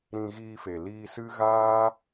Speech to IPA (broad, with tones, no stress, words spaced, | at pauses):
ɾĩ˧ɣiː˧fe˨ liː˧sɨ˦ ɣaː˦